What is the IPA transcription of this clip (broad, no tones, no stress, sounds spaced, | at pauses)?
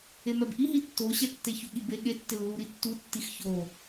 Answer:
e m ɛ b ʔ i ɦ i tː o ɕ ɛ tː e ç u ɠ i b e ɠ e tː ɪ lː u ɾ i tː u tː i x ç o